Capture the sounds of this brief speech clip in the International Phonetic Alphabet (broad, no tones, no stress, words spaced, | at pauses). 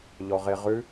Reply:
ʎɔʁeʁʉ